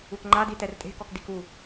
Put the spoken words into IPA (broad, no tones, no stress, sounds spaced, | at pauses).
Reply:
u k ŋ͡ǃ a d i t ɛ r tʼ e̤ k ɔ k d i k u